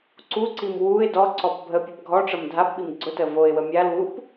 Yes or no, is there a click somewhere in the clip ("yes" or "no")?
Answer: yes